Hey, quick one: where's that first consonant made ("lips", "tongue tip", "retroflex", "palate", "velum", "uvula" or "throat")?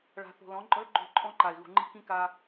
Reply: retroflex